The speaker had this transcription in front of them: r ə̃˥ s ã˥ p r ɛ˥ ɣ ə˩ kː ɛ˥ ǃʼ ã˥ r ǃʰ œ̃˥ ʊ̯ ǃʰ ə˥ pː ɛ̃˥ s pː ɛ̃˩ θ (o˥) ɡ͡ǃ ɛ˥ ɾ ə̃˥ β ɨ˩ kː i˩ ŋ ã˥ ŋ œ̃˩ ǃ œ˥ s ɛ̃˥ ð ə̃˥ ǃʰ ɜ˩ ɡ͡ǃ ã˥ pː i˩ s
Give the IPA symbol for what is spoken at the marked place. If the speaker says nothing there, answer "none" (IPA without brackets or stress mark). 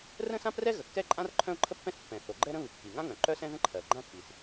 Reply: o˩